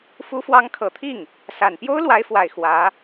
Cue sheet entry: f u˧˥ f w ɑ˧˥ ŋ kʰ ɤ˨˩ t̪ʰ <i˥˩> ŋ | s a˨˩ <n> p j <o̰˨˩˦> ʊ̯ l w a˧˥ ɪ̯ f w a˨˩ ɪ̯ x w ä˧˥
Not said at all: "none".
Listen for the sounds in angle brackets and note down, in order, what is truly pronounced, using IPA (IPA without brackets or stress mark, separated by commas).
i˥˩, n, o˥